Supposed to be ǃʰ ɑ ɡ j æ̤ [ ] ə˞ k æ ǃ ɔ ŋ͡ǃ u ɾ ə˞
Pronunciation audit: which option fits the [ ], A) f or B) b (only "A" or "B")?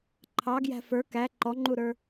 A